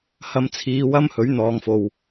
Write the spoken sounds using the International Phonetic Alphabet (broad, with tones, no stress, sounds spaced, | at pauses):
h ɐ˧ m t͡sʰ iː˨˧ w ɐ˥ m h ɵ˨˥ ɥ n̪ ɔː˨ ŋ f o˨ w